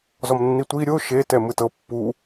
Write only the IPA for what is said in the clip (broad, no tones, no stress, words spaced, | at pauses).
zɔmnːitʷi ɾʲo ʃe tɛmɯtɤ pːu